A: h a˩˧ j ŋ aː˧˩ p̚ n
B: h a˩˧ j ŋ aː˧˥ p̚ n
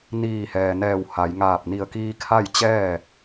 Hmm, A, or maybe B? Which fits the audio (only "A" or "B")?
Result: A